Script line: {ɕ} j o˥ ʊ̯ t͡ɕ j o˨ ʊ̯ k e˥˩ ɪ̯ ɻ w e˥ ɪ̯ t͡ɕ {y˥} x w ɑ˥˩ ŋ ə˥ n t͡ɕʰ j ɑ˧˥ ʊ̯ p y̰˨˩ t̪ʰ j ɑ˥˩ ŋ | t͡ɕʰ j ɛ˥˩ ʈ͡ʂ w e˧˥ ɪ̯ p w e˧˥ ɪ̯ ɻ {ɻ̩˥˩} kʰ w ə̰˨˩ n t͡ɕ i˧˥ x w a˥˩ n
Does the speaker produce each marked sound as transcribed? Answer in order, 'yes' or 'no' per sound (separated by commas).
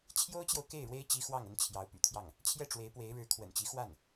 no, no, no